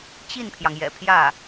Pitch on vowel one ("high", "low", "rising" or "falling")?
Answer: falling